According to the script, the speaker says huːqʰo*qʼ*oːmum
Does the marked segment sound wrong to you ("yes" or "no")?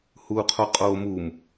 no